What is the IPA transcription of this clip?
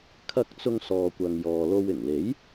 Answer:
kʰ ɐ˧ k̚ t͡s ʊ˥ ŋ s ɔː˧ kʷ ɐ˧ ŋ j ɔː˧ l o˥ w ɪ˨˩ ŋ l e˨˥ j

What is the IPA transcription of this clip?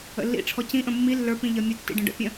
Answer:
ə̰ lː ḭ ʈ͡ʂʰ ɔ c ĩ ʔ ə̃ mː i lː ə˞ p ĩ ʎ ʌ mʲ ə tː ḭ ɖ ə̃ ɖ ə̰ pʲ ə̃

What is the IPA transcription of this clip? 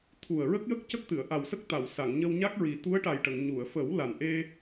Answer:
t̪ʰ u˨˩ ə̯ ɹ ə˦˥ k̚ j ə˦˥ k̚ c ə˦˥ k̚ t̪ ɨ˨˩˨ ə̯ ʔ a˨˩ w s ə˦˥ k̚ t̪ a˨˩˨ w s a˨˩˨ ŋ ɲ ə˧ w ɲ a˦˥ k̚ ɹ i˨˩ t̪ u˧˥ ə̯ ʈ a˨˩ j ʈ ə˨˩˨ ŋ ɲ u˨˩˨ ə̯ f ə˨˩˦ w l a˨˩ n ʔ e˧

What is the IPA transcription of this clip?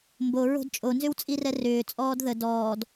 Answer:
m b o ɹ o̤ d t͡ʃʼ o n z ʏ w t͡sʼ i r ɛ r ʏː t͡sʼ ɔː d ð ə d ɔː d

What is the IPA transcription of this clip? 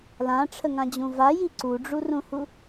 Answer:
l ã ʈ͡ʂʰ ə ŋ ã d͡ʑ ũ v a j i ǀ u ɖ͡ʐ u r ũ h u

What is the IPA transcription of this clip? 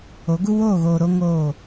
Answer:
o˨˦ ɡ u˦ w oː˦˨ ɣ oː˨ ɾ o˦ ŋ oː˦˨

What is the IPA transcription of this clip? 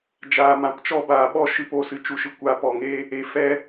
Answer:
d͡ʒ aː˨ m ã˨ p t͡ʃ ɔ˧ b aː˨ ɓ ɔ˧ ʃ ɨ˧ p o˨ s ɨ˨ t͡ʃ u˧ ʃ ɨ˧ kʷ aː˧ p ɔ˨ ŋ e˦ | e˨ f ɛ˧

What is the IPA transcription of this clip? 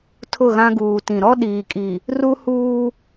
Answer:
tʰ ʊ˦˨ ɣ ã˦ ɡ uː˨ t ĩ˨ ɾ ɔ˦ ɗ iː˨ kʼ i˨ | r u˦ h uː˦

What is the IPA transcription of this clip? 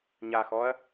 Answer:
ɲ a x ɔː ɐ̯

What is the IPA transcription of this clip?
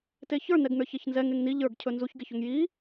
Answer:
t e ç ə˞ n ɛ ɡ n ə˞ ç ɛ ç n z ɛ ŋ e ŋ n i ʎ ə˞ ɡ cʰ ɵ n z u ç ɡ e ç ɵ ŋ j i

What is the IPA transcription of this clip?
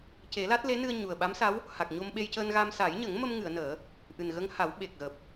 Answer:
c e˨˩˦ l a˦˥ t̚ l e˧˥ n ɨ˧ ə̯ ɲ u˨˩ ə̯ ɓ a˧˥ m s a˧˥ w | h a˨˩ k̚ ɲ o˧ m ɓ e˧ j c əː˧ n ɣ a˧ m s aː˨˩˦ j ɲ ə˨˩˦ ŋ m ə˧ m ŋ ɨ˨˩˨ ə̯ n əː˨˩˦ | ʔ ɨ˨˩ n ɣ ə˧ ŋ h a˨˩˦ w ɓ e˨˩ k̚ ɣ əː˨˩ p̚

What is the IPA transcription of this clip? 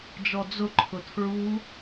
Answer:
d͡ʒ ɔ d͡z ʊ ǃʰ ʊ tʰ ɹ u

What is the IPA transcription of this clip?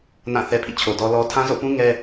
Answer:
n ã˦˨ θ ɛ˦ pʰ ḭ˦˨ t͡ɕʰ o˨ d ɔ˦ l ɔ˦ tʰ ã˦ z o̰˦˨ p ũ˦ ŋ ɛ˦

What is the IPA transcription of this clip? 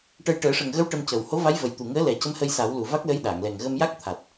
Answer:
ʈ ə˧ j ʈ əː˨˩˦ ʂ ə˨˩ ŋ ɣ ə˧˥ w ʈ ə˧ m c ə˨˩ w h o˧˥ v a˧˥ j v ə˨˩ j t̪ u˨˩ ŋ əː˧˥ l ɛ˨˩˦ c ə˧˥ m h ə˧ j s a˨˩˦ w l u˨˩ v a˦˥ k̚ l ə˧˥ j ɗ aː˨˩˨ ŋ l ɛ˨˩ ŋ ɣ ə˧ m j a˦˥ k̚ t̪ʰ a˨˩ t̚

